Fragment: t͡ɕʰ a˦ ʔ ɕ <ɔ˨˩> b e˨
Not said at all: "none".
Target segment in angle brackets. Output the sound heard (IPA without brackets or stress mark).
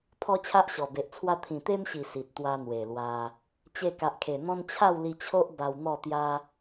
ɔ˨˩